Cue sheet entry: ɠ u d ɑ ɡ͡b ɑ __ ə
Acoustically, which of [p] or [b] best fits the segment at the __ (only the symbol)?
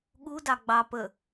p